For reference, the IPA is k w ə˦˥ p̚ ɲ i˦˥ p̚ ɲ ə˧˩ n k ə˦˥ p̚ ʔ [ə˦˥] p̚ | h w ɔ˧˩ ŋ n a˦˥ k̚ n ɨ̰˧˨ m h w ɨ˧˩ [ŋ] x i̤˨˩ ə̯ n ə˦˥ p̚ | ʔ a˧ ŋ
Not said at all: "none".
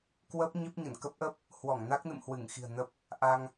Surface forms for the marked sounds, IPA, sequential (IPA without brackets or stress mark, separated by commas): ə˦˥, ŋ